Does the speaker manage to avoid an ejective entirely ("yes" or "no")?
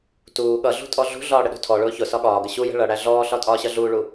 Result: no